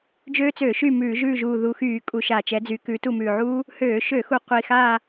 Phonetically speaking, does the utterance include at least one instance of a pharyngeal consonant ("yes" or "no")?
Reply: yes